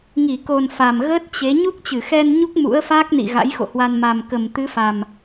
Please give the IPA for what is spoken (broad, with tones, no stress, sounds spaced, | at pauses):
ŋ i˧˩ k o˨˩ n f a˨˩ m ɣ əː˦˥ t̚ t͡ɕ e˨˦ ɲ u˦˥ k̚ t͡ɕ ɨ˧˩ x ɛ˧ n ɲ u˦˥ k̚ m ṵ˧˥ ə̯ f aː˦˥ k̚ n ḭ˧˨ ɣ a̰˧˥ j x o̰˧˨ h w a˧ n m a˨˩ m k ə˨˩ m t̪ ɨ˨˦ f a˨˩ m